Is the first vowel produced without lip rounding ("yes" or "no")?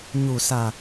no